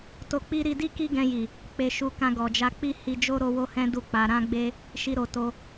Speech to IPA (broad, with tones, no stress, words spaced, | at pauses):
to˧k͡pi˦ ɾi˧di˦ ki˦ɡɛ̃˧ji˨ | k͡pe˧ʃu˧ kã˧ɡɔ˨d͡ʒa˧k͡pi˦ hi˧d͡ʒo˦ ɾo˦ wo˦hɛ̃˦ du˦˨k͡pa˧ ɾã˦ɡ͡be˦ | ʃi˧ɾo˨to˧